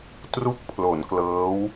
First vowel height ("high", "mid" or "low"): high